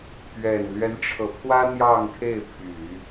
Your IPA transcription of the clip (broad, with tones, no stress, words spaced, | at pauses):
pɥɛ˨˩n lɥɛ˧˥nʈ͡ʂʰɤ˨˩pʰwä˥ n̪jɑ˥˧ŋkʰe˥˩ɪ̯pʰy˨˩˦